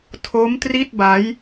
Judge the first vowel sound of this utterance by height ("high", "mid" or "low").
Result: mid